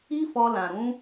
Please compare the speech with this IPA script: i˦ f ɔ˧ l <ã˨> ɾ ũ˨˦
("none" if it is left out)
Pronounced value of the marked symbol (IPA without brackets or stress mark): ã˨